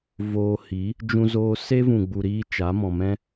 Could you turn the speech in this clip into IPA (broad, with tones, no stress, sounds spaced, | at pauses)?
v oː˧ h iː˨˦ | d͡ʒ ũ˧ z oː˧ s e˦ v ũ˨ ɡ͡b u˨ ɾ iː˧ t͡ʃ a˨˦ m ɔ̃˨ m ɛ̃˦